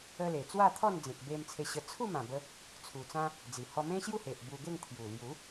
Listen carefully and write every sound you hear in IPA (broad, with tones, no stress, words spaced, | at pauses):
ə˧ le˨˩t͡swa˥˧t̪ʰɔ˥˧nd͡zẽ˨k̚ be˧m t͡sʰe˧ɕə˧ t͡sʰu˥˧mã˨˩bə˧ | t͡sʰu˨˩t͡sã˦ | d͡zi˨˩ hɔ˧mẽ˦ɕju˥˧ he˨ʔbu˧ɡe˥˧ŋ t̪ʰju˨˩lju˨˦